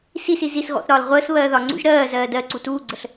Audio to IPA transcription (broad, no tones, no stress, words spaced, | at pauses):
sisi zis ɣɔ̰θɾɒːl ʁʷəːs βɜːðɒŋ͡ǀṵʒ ɾɜː zɜːdɜǀu tuːɡ͡ǀəɬ